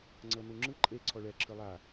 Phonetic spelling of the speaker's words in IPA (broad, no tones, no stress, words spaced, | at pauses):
ŋ͡ǀɤnuŋ͡ǁɯ ǃʼe ǀʰɔɭɛ ǁʰɯlˠa